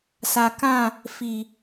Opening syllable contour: low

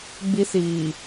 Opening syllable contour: high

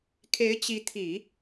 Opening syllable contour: rising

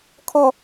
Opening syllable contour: low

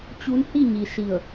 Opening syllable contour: rising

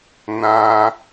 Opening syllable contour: high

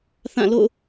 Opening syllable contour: falling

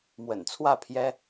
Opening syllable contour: low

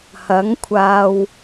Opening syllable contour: rising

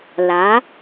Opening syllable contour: rising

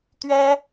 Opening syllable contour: high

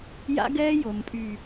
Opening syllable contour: high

